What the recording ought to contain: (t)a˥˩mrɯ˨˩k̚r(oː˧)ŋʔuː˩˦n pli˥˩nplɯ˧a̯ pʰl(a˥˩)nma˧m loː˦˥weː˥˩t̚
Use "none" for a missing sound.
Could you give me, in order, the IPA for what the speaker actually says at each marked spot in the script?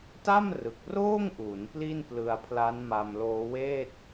t, oː˥˩, a˦˥

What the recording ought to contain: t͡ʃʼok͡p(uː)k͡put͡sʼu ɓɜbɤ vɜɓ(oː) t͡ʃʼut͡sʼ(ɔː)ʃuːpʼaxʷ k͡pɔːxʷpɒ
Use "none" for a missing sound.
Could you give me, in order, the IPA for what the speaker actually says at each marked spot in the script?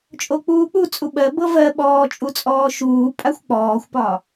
uː, ɔː, ɔː

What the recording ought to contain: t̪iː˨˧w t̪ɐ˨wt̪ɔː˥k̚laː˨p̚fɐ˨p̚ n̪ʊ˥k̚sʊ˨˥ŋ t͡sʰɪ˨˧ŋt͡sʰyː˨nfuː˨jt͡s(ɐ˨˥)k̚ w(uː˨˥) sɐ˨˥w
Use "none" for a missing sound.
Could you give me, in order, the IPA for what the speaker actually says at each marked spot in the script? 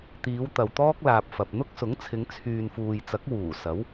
ɐ˨˥, uː˨˩

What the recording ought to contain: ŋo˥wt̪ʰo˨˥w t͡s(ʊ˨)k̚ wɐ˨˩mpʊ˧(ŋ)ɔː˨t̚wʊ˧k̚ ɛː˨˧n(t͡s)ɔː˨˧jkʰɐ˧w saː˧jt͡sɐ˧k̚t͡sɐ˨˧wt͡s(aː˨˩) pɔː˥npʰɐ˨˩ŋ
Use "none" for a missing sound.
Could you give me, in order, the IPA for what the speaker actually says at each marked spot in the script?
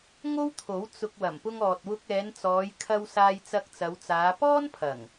ʊ˨, ŋ, t͡s, aː˨˧

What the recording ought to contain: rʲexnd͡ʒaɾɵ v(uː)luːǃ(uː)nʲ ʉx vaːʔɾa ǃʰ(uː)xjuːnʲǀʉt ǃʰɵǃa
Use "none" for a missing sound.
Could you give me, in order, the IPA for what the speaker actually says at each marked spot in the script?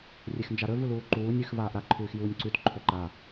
u, uː, ʉː

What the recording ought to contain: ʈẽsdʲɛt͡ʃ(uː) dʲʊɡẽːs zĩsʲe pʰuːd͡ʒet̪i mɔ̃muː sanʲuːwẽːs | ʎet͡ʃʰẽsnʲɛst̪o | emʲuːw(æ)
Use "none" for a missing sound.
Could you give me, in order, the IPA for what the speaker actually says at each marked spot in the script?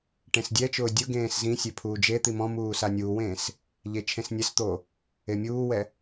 ʊː, ɛ

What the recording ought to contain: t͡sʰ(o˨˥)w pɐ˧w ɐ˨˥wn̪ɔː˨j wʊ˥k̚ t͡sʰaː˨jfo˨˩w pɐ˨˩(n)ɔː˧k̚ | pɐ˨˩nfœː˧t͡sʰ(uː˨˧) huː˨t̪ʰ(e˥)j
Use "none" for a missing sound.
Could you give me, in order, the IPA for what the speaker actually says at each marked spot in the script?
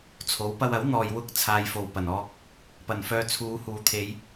o˨˥, n, uː˨˧, e˨˧

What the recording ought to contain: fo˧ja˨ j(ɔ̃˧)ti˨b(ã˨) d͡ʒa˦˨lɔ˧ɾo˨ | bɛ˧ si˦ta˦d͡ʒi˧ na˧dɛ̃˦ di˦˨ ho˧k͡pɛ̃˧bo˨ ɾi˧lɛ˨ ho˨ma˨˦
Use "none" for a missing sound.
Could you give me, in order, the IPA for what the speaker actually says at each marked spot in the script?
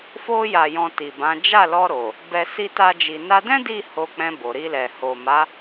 ɔ̃˧, ã˨˦

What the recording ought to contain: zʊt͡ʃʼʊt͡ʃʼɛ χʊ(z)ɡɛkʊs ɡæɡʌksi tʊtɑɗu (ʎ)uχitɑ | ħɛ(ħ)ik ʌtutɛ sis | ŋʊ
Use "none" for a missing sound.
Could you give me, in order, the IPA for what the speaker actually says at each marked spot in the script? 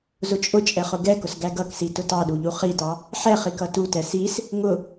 none, ʎ, χ

